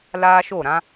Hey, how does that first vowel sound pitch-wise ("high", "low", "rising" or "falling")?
high